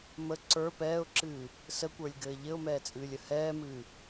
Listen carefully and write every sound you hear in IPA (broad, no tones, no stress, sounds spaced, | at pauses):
m ə ǀ ə˞ p ɛː ʊ̯ ǁ ɨː | s ə kʷ ə˞ lʲ ɡ ɘː ʎ ɘ ʊ̯ m ɛː t͡sʼ ɨː lʲ ə h ɛː m ɨː